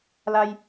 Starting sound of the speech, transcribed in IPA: l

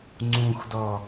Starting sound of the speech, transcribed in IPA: ŋ͡ǀ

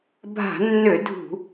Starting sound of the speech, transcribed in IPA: bʱ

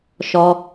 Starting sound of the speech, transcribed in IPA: ʃ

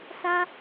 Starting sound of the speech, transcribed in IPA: s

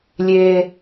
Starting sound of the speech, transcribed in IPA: lʲ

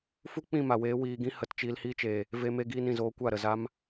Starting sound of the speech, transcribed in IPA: f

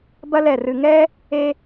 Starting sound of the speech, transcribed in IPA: b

